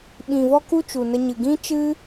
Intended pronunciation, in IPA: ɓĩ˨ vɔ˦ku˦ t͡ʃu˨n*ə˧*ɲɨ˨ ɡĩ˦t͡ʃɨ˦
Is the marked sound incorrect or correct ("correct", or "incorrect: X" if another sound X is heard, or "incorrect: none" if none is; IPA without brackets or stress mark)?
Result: correct